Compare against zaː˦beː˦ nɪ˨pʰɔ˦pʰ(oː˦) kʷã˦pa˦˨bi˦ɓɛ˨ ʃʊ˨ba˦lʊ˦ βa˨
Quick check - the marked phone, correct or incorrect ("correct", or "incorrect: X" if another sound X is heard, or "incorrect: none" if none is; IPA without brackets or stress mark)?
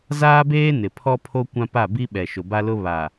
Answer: incorrect: o˦